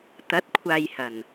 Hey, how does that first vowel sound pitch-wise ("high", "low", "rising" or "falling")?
rising